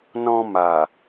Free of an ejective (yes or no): yes